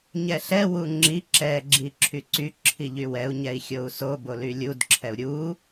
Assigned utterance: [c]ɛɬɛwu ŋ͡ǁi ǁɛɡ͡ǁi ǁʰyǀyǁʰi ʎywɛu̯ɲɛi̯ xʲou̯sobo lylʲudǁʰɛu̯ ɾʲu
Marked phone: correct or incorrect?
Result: incorrect